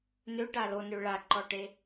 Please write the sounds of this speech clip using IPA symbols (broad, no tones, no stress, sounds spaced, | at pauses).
n ø ʈ a l o n ø ɭ a ǃ ɔ ʈ e